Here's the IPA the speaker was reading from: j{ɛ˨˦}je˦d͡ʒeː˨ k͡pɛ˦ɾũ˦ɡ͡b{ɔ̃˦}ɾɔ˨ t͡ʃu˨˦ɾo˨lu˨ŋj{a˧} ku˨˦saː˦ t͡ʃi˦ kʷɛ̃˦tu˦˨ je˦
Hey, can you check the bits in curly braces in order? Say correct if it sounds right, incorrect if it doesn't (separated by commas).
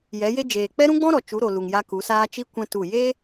correct, correct, correct